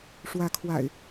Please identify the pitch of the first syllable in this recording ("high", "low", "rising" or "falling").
rising